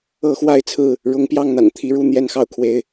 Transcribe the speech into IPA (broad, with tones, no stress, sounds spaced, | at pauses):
ɤ˦ x w a˥˨ ɪ̯ t͡sʰ ɹ̩˥˨ | ɻ ʊ˨˦ ŋ p j ɑ˥˨ ŋ n̪ a̰˨˩ n t̪ʰ i˨˦ ɻ u˥˨ n̪ j ɛ˦ n x ɑ˥˨ ʊ̯ kʰ w e˦ ɪ̯